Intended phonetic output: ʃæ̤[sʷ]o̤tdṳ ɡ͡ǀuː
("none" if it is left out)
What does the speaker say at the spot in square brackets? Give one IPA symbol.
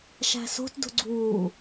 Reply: s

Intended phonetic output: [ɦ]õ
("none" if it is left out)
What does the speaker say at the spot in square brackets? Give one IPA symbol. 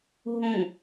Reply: ɦ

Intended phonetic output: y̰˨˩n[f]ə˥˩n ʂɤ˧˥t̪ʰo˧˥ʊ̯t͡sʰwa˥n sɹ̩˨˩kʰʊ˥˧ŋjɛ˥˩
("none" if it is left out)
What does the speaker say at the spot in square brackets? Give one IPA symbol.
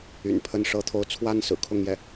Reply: pʰ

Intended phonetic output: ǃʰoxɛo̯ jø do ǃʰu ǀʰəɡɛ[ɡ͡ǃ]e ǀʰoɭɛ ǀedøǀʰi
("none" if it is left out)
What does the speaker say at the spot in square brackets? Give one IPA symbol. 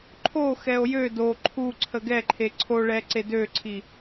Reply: ǃʰ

